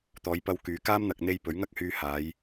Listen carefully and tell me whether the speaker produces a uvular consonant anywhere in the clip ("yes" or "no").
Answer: no